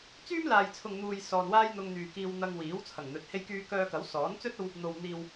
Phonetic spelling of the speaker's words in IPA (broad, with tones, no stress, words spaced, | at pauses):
t͡syː˥mlaː˨jt͡sʰʊ˨ŋn̪uː˨j sɔː˨nwaː˥jn̪ʊ˧ŋ n̪yː˨kiː˧wn̪ɐ˧ŋwiː˨˥w t͡sʰɐ˨˩ŋn̪ɵ˨˥t̚ he˧jkyː˧kœː˧kɐ˨˥w sɔː˨˥n t͡sɵ˥t̚o˧w | n̪o˨w n̪iː˨w